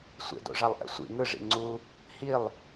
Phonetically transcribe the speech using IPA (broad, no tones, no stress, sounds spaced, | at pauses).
sʷ ḛ d o̰ ʐ a lˠ ʔ ɛ̰ sʷ ḭ ŋ ɯ ʐ ḭ ŋ͡ǀ u | h i lˠ